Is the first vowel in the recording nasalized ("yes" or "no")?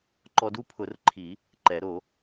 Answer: no